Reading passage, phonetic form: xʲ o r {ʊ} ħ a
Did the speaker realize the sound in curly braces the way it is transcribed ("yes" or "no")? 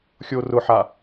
yes